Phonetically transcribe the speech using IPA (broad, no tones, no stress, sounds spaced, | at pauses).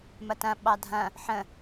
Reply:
m ɐ t ɐ̃ ɓ ɑ dʱ ɐ̃ | ħ ə̃